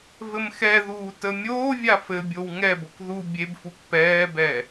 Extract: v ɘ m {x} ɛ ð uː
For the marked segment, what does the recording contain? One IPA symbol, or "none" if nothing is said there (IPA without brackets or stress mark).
x